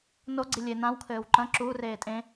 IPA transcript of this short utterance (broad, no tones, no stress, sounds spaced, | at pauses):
n o ɡ͡ǀ i lʲ e n ã w kʰ ɘː w ǃ ɐ̃ ǁ uː r eː tʼ ẽ